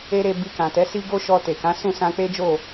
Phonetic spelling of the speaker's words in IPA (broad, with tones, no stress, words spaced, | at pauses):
e˦ɾe˧ bi˧kã˨tɛ˨˦si˦ ɡo˦ʃɔ˧ te˨kã˨˦ sũ˦˨sã˧ k͡pe˦d͡ʒo˦˨